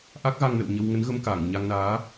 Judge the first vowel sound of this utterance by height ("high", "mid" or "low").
low